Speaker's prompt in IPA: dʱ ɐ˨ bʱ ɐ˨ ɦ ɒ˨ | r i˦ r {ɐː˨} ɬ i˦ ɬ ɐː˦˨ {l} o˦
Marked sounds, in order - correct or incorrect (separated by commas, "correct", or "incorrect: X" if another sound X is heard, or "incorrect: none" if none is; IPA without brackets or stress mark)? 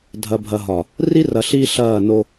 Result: incorrect: ɐ˨, incorrect: n